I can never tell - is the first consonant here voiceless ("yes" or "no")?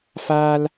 yes